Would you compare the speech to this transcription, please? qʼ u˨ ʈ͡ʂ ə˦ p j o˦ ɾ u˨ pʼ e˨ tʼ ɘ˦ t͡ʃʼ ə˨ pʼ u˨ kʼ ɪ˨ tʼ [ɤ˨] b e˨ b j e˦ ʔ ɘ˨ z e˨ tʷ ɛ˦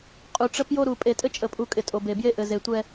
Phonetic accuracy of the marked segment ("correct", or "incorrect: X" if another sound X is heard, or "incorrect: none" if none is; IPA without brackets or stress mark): incorrect: o˨